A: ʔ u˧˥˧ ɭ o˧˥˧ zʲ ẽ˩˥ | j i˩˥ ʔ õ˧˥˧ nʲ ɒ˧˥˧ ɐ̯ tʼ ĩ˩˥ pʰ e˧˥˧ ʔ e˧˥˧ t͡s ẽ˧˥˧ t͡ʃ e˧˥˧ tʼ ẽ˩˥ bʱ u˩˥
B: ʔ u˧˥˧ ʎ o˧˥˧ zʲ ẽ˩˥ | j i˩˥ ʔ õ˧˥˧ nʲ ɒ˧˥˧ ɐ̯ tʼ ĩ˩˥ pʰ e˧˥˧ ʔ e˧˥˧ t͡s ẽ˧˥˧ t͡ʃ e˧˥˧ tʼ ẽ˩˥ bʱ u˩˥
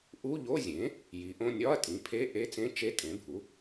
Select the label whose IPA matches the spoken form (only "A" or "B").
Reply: B